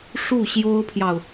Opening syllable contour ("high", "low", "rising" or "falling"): falling